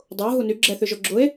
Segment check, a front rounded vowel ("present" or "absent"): present